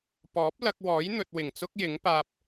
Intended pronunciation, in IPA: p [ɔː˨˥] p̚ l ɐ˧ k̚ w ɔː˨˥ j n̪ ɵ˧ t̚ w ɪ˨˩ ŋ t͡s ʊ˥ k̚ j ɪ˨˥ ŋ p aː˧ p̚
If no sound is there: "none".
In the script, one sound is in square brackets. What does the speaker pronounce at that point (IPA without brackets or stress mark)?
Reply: ɔː˨˥